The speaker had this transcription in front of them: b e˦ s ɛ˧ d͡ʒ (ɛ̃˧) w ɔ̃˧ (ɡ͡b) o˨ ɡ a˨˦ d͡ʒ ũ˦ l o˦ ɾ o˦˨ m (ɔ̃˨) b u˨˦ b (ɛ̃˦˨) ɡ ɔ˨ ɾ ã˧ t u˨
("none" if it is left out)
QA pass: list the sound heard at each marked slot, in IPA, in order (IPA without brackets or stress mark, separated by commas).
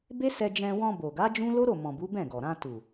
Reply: ɛ̃˧, b, ɔ̃˨, ɛ̃˦˨